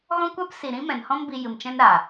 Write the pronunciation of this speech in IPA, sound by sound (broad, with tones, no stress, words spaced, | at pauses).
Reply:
ɣɔ̃˦kʷa˦psi˨ ɾĩ˦mɛ̃˨nhɔ̃˦m bi˧jɨ˨mt͡ʃɛ̃˦n ɾa˨